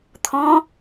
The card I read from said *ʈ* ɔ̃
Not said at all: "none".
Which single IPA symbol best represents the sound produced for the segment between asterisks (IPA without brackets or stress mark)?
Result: t̪ʰ